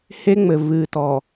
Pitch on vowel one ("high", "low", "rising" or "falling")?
high